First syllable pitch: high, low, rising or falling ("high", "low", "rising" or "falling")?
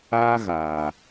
high